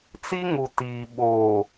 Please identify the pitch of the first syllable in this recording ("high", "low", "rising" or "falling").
high